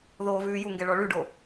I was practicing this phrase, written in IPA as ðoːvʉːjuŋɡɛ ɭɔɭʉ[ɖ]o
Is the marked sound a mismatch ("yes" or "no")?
no